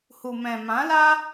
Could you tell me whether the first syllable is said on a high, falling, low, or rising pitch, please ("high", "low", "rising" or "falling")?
low